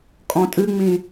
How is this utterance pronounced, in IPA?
kʼ ɔ̃ tʼ ɨ ŋ͡m ĩ

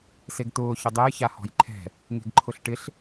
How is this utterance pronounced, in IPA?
s e ɡ t̪ ʊː ç ʊ dˤ e j ç a h ɔ̤ j ǃʰ ɛ̤ | ŋ e̤ ɡ ǃʰ ʊ ɬ ʈ ɪ ɬ

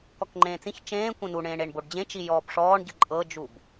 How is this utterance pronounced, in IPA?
k ɔ k ŋ͡ǃ ẽː t͡s ĩ ç t͡ʃ ẽː kʷ ẽ n u ɳ ẽː ɳ e ɳ b o ɖ d͡ʑ ẽ t͡ʃ i j ɔː b ʂ ɔː ɳ ɟ ɯ ǃʼ ɤ d͡ʒ u b

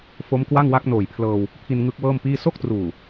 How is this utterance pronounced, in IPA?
f o˦˥ m k w a˥˩ ŋ w a˦˥ k̚ n oː˨˩ j pʰ l ɤː˧ w | pʰ i˧ n ŋ ɯ˦˥ k̚ w ɤː˥˩ m p iː˥˩ s o˥˩ k̚ t r uː˨˩

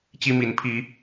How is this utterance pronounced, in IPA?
t͡ɕ i˦ m i˨˦ n pʰ i˨˦

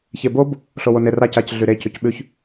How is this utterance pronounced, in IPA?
ç e b o b | ɬ o w o n e r a c a c ɮ y ɾ e c ʉ c ɓ ʉ ç

